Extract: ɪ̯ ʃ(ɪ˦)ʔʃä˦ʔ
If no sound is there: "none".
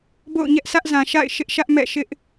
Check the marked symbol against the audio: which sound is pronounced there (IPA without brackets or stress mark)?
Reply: ɪ˦